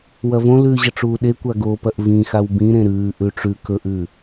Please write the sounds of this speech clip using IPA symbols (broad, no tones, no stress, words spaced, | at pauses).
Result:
wɐvõlʉː ʑɐʈ͡ʂuːɗekʷa ɡopɐʔ vĩxaw bĩɾẽ ɾʉːʔʉ ʈ͡ʂʉ kɵʔʉ